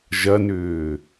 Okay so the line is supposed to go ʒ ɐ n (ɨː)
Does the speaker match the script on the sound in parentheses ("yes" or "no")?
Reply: no